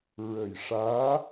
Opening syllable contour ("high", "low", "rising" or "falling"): low